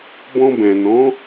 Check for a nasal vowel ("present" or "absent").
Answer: present